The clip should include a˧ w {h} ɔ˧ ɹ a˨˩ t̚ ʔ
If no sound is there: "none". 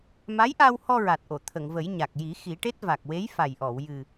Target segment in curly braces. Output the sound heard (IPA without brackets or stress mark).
h